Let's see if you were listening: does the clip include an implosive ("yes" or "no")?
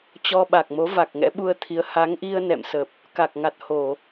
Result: yes